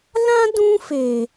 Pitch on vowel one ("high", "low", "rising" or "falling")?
high